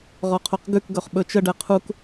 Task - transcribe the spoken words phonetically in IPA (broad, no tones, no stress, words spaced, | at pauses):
ʁɔqʰoqɡʉkɡɵχ ɓɵt͡ʃəɖɛ qʰuk